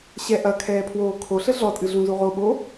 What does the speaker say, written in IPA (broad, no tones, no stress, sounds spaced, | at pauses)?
ɕ ɛ ʔ ɐ kʰ ɛː pʰ w oː kʰ o ɬ ɘ ɮ ɔ tʼ ɨ ɮ ũ z u ʁ o ɓ o